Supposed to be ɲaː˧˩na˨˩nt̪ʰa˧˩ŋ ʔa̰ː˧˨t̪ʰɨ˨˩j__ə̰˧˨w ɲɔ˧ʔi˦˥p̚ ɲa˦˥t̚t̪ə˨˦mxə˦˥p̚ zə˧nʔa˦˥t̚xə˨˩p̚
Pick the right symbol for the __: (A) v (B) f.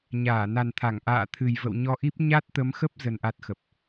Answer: A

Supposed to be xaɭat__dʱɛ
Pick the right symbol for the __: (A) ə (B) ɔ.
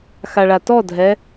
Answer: B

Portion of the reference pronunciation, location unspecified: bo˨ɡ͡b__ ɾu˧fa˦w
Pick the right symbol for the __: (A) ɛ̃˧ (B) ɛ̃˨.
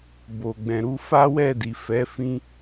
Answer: B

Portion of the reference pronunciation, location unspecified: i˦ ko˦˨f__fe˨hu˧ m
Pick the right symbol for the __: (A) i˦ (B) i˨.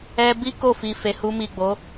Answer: B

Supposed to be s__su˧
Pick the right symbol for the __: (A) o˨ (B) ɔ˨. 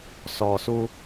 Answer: B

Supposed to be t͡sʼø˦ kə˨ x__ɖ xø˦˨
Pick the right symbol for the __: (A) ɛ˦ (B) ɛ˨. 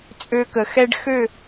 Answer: A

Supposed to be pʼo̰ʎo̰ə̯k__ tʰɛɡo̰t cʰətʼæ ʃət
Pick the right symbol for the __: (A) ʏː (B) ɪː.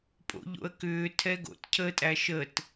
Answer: A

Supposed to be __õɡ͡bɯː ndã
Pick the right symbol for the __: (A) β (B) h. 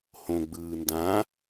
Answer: B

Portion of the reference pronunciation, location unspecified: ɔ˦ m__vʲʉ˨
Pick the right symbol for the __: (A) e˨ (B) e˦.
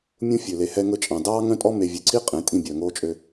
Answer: A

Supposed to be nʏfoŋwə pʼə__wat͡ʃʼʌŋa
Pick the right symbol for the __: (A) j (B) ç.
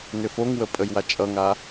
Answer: A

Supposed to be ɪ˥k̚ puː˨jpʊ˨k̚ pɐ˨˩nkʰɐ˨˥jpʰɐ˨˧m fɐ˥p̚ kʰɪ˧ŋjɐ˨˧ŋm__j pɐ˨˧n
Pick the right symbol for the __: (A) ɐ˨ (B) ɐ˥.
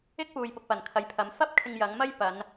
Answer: B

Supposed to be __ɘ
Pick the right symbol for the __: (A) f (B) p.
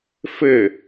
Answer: A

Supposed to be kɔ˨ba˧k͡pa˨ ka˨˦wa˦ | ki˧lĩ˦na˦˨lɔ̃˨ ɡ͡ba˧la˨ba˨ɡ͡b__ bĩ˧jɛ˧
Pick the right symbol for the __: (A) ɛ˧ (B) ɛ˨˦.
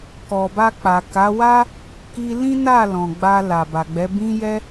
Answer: B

